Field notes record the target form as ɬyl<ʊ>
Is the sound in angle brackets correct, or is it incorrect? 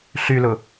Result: correct